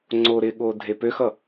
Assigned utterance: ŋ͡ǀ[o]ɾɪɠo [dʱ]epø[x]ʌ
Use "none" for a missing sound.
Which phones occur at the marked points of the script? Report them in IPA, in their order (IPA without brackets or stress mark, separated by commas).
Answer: o, dʱ, x